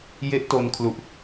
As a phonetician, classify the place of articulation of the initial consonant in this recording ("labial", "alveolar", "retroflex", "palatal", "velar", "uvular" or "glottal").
palatal